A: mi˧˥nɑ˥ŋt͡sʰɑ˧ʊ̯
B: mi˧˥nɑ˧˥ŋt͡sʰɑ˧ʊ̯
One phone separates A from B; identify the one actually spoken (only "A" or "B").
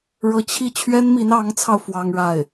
B